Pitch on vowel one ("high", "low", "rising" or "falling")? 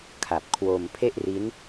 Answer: low